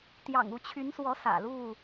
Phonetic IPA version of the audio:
t̪jɑ̰˨˩ŋu˥˨t͡ɕʰy˨˦nswɔ˨˦ sä̰˨˩lu˥˨

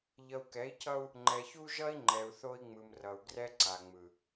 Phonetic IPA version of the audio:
ʎʌ˨u̯kɛ˨˦i̯cʰʌ˦u̯ | ŋ͡ǃɛ˨çu˦ʒʌ˦i̯ŋ͡ǃɛ˨u̯ θo˦i̯ŋ͡mɯ˨mrʌ˨u̯ ɡrɛ˦ǀa˨ŋ͡mɯ˨

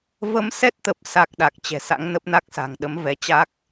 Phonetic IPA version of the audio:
və˧msɛ˦˥t̚t̪ə˨˩p̚ sa˦˥k̚ɗa˨˩k̚t͡ɕɛ̤˨˩sa̰˧˥ŋ nə˦˥p̚na˦˥k̚sa̤˨˩ŋɗə˨˦m vɛ˨˦t͡ɕa˦˥k̚

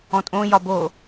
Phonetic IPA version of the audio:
ɔ̃tʼõ jɒbo

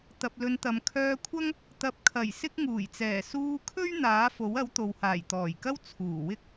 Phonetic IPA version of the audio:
t̪ɐ˨p̚lɵ˨˧nt̪ɐ˨m kʰœː˧kʷʰɐ˥ŋ | t̪ɐ˨˥p̚kʰɐ˨˩j sɪ˥k̚ ŋuː˨˩jt͡sɛː˨˩ suː˧kʰɵ˥ɥ n̪aː˨˥ fo˨˥wɐ˨˥wt̪o˨w haː˨˩jt̪ɔː˨˩jkɐ˥w t͡sʰuː˨˩wɪ˥k̚

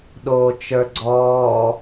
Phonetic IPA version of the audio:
ɗoːt͡ʃə˞ɡ͡ǀɔː

